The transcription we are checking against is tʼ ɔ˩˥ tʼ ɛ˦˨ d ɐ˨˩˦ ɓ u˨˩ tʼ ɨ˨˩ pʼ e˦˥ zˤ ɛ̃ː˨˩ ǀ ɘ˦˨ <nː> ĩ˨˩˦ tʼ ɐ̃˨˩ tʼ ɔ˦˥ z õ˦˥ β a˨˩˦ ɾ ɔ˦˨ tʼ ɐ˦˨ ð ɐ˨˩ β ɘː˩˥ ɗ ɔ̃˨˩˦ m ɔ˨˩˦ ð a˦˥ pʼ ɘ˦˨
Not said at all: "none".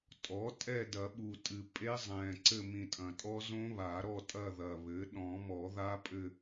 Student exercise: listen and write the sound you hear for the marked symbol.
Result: m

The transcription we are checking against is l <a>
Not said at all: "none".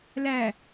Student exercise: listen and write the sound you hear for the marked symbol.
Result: æ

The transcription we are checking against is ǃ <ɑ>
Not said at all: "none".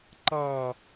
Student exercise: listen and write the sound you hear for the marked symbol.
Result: ɑ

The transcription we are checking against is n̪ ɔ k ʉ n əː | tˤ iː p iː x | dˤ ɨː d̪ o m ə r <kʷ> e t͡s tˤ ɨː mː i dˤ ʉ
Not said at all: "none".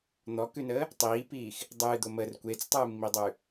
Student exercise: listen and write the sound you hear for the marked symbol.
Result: kʷ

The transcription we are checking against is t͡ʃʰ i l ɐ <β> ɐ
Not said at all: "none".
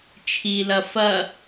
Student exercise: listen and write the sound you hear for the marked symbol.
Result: f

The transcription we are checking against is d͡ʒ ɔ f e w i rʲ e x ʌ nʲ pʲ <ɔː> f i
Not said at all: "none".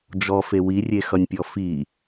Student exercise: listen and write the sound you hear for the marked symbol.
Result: ɔ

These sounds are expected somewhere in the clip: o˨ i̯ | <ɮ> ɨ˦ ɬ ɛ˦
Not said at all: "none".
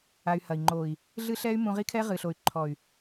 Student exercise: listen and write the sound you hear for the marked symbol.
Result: ɮ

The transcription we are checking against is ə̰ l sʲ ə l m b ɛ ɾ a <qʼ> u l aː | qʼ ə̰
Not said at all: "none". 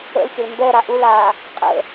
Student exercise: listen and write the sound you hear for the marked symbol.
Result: ʔ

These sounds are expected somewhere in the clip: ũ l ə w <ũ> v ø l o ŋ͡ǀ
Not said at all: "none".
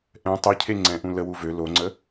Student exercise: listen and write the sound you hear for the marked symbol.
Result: u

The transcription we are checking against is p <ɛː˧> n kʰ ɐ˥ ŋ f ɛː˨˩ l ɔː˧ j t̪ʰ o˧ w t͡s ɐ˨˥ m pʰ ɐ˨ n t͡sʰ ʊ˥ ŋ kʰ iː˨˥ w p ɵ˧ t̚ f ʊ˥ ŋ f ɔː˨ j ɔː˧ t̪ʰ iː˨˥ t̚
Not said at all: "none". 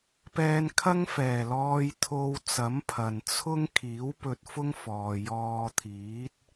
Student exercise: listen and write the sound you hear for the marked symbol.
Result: ɛː˧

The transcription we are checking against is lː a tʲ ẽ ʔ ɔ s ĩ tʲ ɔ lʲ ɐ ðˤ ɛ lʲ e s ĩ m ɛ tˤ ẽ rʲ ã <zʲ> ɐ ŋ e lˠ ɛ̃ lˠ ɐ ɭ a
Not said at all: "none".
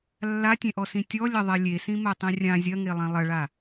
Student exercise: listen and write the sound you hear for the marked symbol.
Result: zʲ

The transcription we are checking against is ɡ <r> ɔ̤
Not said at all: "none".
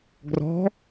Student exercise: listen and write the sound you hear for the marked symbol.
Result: r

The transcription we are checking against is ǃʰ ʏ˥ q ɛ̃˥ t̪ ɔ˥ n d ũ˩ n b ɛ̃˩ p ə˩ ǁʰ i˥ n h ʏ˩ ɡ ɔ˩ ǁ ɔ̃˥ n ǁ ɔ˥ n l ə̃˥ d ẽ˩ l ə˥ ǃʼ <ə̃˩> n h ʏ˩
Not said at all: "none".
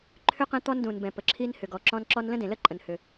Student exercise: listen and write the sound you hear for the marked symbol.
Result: ə̃˩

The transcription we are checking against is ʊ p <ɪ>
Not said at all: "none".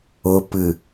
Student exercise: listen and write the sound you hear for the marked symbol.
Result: ɨ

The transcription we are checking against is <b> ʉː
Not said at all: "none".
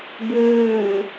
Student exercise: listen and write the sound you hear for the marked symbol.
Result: b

